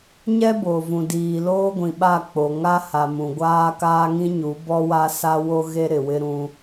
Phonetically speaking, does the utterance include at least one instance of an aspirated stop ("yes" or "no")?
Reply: no